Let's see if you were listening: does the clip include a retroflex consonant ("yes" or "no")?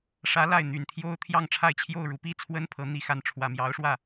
yes